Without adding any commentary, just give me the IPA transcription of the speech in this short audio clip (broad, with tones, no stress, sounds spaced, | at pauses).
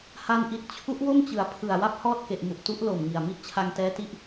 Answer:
h a˧ n ʔ i˨˩ t̚ t͡ɕʰ u˦˥ ʔ w o˥˩ m t͡ɕ ɯ˩˦ a̯ pʰ ɯ˨˩ a̯ w a˥˩ p̚ h ɔː˥˩ t̚ k e˨˩ ʔ m u˨˩ ʔ t u˦˥ ʔ l o˨˩ m ŋ i˨˩ a̯ m i˥˩ ʔ t͡ɕʰ a˧ ŋ t ɛː˦˥ t i˦˥ ʔ